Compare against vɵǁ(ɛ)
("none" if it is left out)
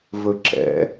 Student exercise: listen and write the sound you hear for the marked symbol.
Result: ɛ̰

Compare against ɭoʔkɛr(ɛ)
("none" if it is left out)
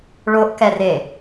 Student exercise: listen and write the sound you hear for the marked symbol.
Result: e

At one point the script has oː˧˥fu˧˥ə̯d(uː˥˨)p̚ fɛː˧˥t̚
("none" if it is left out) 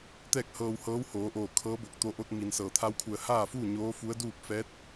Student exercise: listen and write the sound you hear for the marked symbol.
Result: uː˥˨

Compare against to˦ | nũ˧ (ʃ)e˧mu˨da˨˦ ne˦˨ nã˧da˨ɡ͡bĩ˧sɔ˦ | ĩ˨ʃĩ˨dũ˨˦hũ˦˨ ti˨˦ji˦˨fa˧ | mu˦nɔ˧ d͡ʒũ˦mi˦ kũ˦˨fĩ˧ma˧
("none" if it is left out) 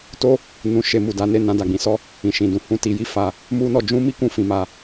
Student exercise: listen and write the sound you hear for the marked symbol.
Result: ʃ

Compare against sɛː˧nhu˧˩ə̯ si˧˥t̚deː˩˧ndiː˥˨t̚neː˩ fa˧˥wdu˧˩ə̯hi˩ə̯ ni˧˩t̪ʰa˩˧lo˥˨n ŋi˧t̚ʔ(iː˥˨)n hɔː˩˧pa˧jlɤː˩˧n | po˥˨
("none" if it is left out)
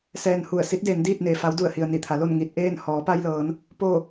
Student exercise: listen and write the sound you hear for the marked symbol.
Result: eː˥˨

